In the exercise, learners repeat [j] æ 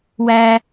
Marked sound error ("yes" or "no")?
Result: yes